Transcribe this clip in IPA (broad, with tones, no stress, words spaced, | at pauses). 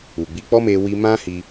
u˨ɡ͡bi˧k͡pɔ˦me˧ wi˧mã˦ hi˧